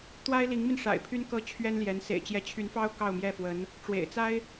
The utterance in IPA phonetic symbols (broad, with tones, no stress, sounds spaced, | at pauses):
t̪ w a˥ ɪ̯ l i˧˥ ŋ m i˧ n ʂ a̰˨˩ ɪ̯ pʰ y˥ n k ɤ˥ t͡ɕʰ ɥ ɛ˥ n l j ɛ˧˥ n s ḛ˨˩ ɪ̯ t͡ɕ j ɛ˧˥ t͡ɕʰ y˧˥ n f ɑ˥ ʊ̯ k ɑ˥˧ ʊ̯ m j ɛ˥˩ f w ə˧˥ n | ʈ͡ʂ w ḛ˨˩ ɪ̯ t͡s a˥ ɪ̯